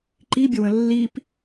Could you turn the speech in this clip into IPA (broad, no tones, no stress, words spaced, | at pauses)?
ǃibʲəwə̃ lːip